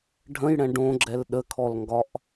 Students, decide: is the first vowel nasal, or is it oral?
nasal